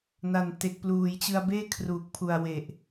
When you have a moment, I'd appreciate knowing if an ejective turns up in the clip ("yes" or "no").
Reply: no